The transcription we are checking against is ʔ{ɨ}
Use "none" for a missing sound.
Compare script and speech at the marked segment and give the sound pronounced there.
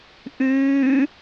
ʉ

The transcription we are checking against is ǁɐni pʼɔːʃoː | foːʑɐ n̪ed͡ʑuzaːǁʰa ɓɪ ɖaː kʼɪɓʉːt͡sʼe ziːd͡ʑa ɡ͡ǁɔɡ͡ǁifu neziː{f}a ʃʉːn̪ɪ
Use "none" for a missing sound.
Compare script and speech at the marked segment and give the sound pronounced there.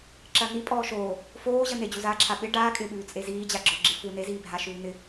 bʱ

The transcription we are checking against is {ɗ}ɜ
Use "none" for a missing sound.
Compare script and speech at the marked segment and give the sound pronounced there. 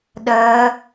ɗ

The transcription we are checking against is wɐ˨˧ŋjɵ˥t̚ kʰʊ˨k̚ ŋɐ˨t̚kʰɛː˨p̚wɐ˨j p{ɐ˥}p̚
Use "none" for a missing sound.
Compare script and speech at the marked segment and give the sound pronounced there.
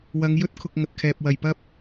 ɐ˥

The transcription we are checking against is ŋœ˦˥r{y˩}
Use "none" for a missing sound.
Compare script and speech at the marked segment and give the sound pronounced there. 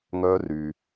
y˩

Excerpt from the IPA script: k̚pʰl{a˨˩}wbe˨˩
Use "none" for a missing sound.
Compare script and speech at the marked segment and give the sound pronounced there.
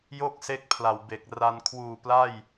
a˨˩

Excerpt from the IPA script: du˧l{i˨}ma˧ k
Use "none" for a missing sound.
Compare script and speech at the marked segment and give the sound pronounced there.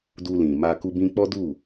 ĩ˨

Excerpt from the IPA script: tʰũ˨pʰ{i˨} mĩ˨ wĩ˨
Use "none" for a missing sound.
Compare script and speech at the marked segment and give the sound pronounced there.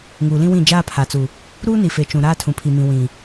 i˨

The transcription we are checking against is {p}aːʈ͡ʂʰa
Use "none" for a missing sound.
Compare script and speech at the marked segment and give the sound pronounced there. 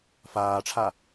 f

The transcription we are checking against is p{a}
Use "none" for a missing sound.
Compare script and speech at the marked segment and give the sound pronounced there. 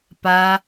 a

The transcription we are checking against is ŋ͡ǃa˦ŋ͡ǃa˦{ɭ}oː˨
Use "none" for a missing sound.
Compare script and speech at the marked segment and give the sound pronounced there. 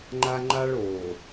ɭ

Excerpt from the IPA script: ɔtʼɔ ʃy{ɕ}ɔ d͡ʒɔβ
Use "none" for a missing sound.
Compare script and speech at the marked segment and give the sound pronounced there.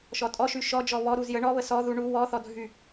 ʃ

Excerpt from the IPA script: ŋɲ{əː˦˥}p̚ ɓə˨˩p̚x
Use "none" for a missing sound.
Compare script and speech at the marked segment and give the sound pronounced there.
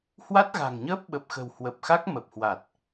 əː˦˥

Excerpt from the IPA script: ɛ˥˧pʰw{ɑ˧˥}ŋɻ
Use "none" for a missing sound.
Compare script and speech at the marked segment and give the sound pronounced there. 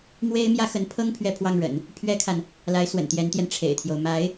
ɑ˥˩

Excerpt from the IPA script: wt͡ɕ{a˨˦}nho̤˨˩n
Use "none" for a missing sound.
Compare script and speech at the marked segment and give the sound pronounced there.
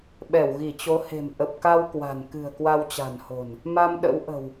a̤˨˩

